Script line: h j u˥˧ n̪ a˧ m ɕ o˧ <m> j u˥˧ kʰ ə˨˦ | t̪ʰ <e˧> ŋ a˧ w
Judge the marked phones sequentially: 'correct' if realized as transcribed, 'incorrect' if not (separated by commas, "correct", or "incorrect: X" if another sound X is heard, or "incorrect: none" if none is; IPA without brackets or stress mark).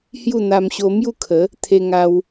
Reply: correct, correct